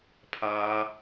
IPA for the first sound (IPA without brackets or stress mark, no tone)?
pʰ